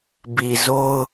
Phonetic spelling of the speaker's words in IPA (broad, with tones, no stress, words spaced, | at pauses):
bi˨zo˦ʊ̯